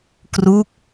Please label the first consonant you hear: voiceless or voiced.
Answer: voiceless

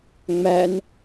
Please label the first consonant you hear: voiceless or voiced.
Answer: voiced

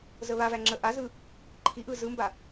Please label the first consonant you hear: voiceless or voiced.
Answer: voiced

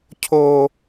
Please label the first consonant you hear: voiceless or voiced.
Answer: voiceless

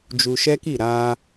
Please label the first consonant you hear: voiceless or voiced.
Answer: voiced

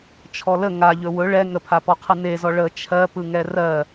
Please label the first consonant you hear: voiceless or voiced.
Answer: voiceless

